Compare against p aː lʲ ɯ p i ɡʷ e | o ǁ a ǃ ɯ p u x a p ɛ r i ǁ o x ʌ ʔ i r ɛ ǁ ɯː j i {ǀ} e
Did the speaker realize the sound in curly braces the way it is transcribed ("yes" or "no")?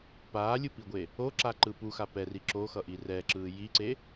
yes